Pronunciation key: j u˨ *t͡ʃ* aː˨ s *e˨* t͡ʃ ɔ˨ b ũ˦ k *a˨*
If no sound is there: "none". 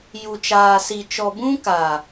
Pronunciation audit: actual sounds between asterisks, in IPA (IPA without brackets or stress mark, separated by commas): t͡ʃ, i˨, a˨